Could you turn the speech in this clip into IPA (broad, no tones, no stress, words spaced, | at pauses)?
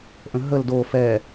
ʔə̃ɦəl do fɛ